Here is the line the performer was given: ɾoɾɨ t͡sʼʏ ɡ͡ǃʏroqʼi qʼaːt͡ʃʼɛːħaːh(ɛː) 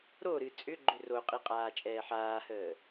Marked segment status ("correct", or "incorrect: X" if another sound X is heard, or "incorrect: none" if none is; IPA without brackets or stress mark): incorrect: əː